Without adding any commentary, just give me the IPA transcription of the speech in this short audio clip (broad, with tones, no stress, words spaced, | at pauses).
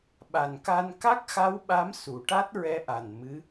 ɓa˨˩nka˧n ka˦˥k̚xa˧˥wɓa˧˥m su˨˩˦ʈa˦˥t̚ɹɛ˧˥ʔa˨˩n mɨ˧˥